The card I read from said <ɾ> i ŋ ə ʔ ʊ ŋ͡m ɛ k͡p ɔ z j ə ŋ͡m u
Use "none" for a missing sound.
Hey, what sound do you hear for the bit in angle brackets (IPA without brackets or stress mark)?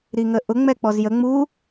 ɾ